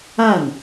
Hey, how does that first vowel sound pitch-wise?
falling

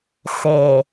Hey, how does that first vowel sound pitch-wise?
low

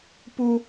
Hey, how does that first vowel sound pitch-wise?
low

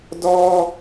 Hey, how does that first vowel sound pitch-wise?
high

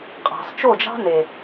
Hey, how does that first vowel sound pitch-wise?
low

